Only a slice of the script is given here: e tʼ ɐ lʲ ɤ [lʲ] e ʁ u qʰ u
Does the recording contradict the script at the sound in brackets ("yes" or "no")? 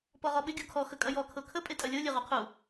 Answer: no